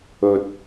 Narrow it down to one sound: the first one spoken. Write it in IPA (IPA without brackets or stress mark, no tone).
ɵ